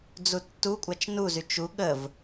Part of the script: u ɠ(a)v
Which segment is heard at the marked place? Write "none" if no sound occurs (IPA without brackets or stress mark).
ə